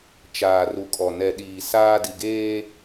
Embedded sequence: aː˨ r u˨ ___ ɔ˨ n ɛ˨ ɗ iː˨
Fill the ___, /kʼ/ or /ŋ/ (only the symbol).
kʼ